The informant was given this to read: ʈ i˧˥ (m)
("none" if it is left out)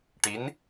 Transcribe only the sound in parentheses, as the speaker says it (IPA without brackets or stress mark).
n